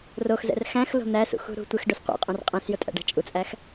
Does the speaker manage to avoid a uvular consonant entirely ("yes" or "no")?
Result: no